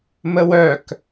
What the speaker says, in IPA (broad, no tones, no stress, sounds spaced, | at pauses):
m ə w œ k